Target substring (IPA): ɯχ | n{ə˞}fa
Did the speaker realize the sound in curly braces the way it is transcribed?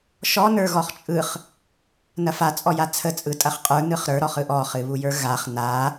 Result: no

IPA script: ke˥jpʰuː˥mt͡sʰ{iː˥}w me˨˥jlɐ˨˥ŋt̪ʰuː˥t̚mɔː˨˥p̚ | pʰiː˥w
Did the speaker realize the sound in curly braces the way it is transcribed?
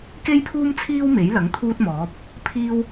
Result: yes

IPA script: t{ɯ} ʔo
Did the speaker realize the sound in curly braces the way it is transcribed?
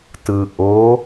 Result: yes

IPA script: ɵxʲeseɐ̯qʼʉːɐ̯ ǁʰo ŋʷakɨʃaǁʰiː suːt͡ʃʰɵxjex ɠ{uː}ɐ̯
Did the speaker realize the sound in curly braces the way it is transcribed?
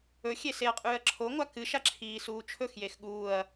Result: yes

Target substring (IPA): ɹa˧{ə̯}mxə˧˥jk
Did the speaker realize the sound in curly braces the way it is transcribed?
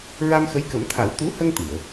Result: no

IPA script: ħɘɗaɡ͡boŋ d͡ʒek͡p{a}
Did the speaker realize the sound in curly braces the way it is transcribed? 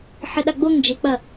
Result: no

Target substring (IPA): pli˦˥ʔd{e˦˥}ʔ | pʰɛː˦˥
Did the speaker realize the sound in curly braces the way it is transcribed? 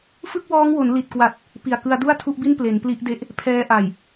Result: yes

